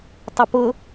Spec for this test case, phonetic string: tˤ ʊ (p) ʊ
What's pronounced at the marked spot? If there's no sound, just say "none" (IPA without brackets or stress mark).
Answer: p